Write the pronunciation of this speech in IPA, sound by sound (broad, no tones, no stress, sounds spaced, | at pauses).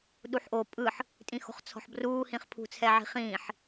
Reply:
ɗ u ħ ʔ o pʼ ɯ ħ | tʼ ĩ x o̤ χ t͡sʰ ɔ̤ ħ b r uː h ĩ χ pʰ ṳ t͡sʰ ɛ ʕ i̤ χ ĩː ħ